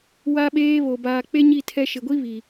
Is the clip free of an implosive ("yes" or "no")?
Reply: no